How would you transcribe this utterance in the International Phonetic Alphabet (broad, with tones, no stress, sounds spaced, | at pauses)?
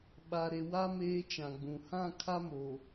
ɓ a˨ ɾ e˨ w a˦ m eː˦ t͡ʃ ã˨ ɡ͡b ũ˨ h ã˦˨ kʰ a˦ m o˨